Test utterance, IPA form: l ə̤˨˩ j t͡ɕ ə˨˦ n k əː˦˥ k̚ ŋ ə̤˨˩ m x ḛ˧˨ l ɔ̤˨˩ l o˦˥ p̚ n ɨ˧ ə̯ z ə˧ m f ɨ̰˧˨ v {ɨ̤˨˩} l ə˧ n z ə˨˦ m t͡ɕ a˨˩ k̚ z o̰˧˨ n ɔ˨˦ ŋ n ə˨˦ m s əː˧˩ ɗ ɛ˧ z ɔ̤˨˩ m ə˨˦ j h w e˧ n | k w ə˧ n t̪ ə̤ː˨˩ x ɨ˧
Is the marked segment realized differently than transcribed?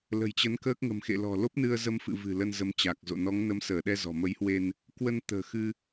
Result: no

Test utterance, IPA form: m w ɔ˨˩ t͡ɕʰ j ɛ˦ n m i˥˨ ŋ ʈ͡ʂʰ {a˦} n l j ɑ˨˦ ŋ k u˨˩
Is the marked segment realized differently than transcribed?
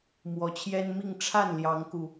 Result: yes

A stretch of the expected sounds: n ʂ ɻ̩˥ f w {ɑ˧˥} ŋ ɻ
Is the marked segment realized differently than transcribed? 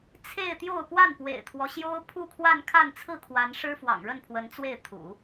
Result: yes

